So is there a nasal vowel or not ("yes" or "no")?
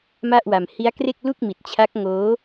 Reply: no